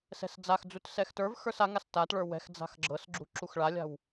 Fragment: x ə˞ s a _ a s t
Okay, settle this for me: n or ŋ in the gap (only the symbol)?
ŋ